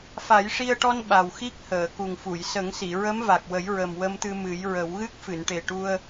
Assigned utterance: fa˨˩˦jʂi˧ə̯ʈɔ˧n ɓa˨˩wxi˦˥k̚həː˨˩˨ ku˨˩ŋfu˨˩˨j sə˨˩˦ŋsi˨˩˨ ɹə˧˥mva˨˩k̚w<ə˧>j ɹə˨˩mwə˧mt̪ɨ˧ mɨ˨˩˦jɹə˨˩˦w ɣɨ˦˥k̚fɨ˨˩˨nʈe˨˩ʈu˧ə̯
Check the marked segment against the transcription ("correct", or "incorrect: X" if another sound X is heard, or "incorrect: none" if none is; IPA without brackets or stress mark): incorrect: ə˨˩˦